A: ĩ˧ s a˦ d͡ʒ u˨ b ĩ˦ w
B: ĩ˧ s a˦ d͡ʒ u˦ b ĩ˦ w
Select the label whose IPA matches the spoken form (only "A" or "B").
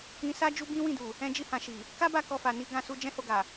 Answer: B